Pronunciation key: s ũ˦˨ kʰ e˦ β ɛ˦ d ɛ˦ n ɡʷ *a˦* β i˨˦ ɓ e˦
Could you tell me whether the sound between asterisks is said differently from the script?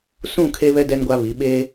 no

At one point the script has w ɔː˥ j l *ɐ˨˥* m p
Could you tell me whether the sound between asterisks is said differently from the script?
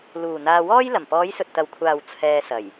yes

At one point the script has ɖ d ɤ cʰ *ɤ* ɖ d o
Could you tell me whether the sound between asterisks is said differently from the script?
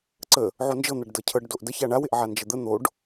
no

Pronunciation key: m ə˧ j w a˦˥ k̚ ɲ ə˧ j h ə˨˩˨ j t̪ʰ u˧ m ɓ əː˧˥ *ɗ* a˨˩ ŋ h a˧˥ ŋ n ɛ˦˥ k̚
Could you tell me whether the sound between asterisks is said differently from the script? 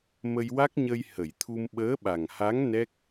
yes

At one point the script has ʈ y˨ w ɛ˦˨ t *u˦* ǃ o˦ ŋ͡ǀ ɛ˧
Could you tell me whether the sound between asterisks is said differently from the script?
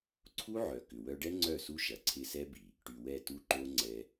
no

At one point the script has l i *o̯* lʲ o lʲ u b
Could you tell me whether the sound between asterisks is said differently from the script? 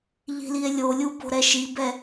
yes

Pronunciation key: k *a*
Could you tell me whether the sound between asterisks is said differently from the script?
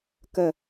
yes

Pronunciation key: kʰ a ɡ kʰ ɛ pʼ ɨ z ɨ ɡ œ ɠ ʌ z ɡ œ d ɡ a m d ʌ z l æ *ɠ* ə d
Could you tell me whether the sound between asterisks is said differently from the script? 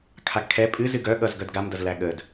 no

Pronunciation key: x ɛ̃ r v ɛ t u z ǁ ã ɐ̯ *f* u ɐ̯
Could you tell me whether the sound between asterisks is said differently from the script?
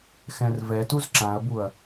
yes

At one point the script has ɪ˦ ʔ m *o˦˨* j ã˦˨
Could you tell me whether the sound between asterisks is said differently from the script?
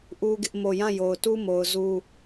no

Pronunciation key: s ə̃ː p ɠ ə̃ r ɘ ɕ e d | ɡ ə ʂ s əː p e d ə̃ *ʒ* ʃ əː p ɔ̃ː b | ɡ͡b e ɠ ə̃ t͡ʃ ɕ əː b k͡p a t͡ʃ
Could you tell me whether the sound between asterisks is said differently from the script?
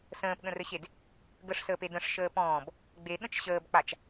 yes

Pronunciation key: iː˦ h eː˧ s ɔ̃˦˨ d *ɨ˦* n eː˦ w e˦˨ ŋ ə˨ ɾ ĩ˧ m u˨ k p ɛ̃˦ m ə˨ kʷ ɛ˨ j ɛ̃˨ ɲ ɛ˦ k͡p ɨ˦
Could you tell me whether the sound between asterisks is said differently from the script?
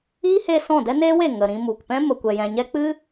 yes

